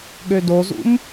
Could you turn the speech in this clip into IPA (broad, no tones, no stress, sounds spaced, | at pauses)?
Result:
ɠ ø d o z ṵ m